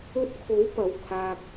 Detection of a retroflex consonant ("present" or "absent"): absent